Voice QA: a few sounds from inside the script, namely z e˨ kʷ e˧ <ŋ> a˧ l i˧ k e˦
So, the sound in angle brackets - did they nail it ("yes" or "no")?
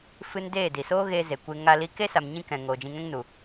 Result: yes